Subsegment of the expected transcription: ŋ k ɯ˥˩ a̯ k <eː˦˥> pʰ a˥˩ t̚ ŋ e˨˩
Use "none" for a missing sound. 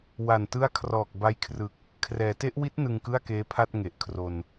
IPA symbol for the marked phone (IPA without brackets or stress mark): eː˦˥